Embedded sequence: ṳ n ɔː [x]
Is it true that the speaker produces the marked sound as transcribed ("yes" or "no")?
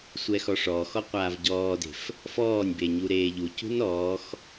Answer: yes